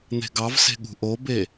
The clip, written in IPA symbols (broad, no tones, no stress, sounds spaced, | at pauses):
n̪ e̤ ɡ ɑ v s e̤ ɠ ṳ ʔ o b e